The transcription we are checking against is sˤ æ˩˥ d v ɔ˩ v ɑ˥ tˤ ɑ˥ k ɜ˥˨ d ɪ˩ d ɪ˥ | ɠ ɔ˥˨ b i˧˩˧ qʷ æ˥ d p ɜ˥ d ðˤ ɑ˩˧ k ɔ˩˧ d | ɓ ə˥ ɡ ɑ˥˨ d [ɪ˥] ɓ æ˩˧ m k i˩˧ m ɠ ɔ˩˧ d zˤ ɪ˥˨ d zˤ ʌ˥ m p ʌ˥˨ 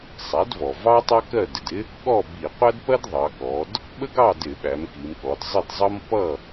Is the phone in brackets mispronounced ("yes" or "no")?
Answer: yes